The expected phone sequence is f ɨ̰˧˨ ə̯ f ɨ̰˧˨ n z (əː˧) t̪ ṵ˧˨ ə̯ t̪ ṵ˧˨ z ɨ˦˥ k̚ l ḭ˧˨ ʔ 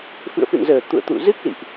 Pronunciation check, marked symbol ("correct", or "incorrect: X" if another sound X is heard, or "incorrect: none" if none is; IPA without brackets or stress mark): incorrect: əː˨˩